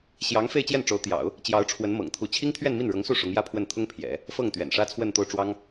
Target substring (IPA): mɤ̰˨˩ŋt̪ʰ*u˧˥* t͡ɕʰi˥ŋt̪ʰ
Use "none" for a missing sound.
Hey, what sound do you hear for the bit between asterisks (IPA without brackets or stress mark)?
u˧˥